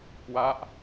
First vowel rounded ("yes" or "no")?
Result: no